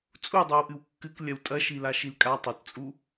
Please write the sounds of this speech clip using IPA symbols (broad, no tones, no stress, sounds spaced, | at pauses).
t͡sʼ u dˤ o w ʔ ɨ w kː ɨ k lʲ ɐ w tʼ ɐ ʃ i l a ʃ i l kʼ a tˤ ɐ t t͡sʼ u